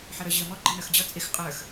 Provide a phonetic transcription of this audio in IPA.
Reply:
ħʌɾə˞ʑɪə̯mɔ ɡ͡ǃɪnə˞xd͡ʑʌ t͡sʼɪx qʼə˞x

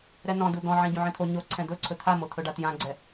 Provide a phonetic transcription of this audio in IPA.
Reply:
ɾɛnɔ̃du d̪ɔ̃ʕẽ ɟũʕẽt̪ʰo ɲo ǀʰɛ̃d̪ɵǀʰɵ t̪ʰamo t̪ʰɵɖatjãɡ͡ǀɛ

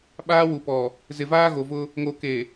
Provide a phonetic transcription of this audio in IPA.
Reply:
ɓaː˦wu˨pɔ˨ | zɪ˨vaː˦ ɣo˨vʊ˦ | ŋo˨ ke˨

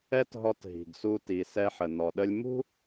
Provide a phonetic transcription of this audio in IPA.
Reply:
ɛ˥tɦɔ˧t ɦi̤˩ɡsu˧ ti˩sɛ˧ħə˩ nɔ˩ɗə˧lʲ mṳ˥

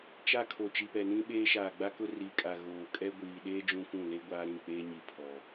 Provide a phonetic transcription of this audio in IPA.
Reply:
t͡ʃa˦˨kʰo˨ t͡ʃi˨pɛ˨nĩ˦ɓeː˦ ʃaː˨ɡ͡ba˦kʊ˦ ri˨kʼa˨ ɣoː˨kʼɛ˦ ɡʷiː˨ɗeː˦ d͡ʒũ˦kʷũ˦˨ le˦ɡʷaː˦ɾĩ˦˨k͡peː˦ ɲi˨pʰɔ˨

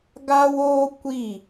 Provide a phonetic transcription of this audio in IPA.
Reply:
ɡa˦woː˦ kʷi˦˨

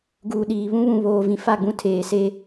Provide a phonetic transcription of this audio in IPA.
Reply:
ɡuː˨ɗiː˨βũ˦βũ˨ βoː˨ vĩ˨fa˦˨ɡ͡bũ˦ tʰeː˨se˦

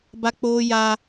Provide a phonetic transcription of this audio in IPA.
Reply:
ba˦k͡poː˦ja˦

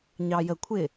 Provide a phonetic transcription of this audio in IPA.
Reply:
ɲɑjəkʷʰɪ

